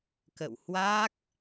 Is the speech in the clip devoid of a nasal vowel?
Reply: yes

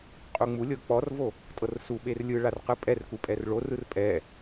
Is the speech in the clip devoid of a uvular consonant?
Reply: no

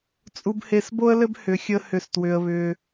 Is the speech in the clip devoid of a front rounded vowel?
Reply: no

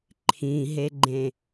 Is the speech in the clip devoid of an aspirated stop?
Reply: no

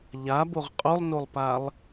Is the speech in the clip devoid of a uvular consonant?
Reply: no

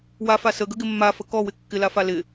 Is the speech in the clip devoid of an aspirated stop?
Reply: yes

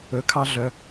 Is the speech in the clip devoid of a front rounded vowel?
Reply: no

